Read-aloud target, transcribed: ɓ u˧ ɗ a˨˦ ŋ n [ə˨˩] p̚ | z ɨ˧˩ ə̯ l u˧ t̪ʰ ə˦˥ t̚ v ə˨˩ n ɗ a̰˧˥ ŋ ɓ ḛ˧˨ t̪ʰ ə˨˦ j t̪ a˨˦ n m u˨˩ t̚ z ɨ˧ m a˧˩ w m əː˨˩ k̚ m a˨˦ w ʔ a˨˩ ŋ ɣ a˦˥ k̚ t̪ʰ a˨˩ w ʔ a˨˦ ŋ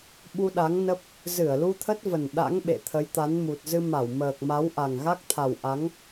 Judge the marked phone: incorrect: ə˦˥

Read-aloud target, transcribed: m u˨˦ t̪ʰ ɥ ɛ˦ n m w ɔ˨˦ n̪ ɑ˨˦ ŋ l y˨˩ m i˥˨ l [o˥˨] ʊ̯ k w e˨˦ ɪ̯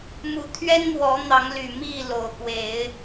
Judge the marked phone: incorrect: o˨˩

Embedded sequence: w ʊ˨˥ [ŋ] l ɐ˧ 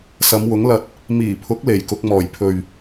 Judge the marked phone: correct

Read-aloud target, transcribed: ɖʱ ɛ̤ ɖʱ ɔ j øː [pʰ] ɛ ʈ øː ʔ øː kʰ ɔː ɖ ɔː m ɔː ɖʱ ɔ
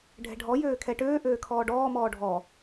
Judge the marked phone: incorrect: kʰ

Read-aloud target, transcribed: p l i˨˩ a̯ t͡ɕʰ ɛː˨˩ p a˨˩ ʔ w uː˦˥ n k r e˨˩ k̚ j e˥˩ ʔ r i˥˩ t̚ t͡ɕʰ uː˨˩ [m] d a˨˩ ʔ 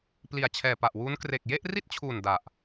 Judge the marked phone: incorrect: n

